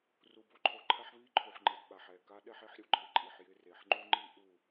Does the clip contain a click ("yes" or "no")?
yes